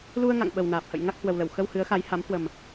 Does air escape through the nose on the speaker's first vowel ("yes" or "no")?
no